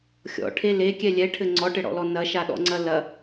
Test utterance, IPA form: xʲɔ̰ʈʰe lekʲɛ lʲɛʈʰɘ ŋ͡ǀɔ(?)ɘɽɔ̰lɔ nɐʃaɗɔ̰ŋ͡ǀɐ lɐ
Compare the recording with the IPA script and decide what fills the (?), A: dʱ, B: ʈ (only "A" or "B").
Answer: B